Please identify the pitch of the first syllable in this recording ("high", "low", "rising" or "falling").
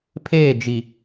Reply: falling